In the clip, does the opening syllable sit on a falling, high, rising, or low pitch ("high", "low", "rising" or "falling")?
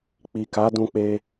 low